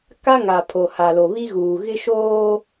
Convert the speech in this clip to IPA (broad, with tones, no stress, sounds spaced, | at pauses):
k a˦ ŋ a˨ pʰ o˨ h a˨ l o˨ β i˦ ɣ uː˨ ɣ ɪ˦ ʃ oː˦